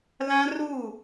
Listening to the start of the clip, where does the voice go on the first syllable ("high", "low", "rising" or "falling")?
high